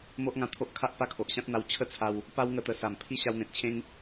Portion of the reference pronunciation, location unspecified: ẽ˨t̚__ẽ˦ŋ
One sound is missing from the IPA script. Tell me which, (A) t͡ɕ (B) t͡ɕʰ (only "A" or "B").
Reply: B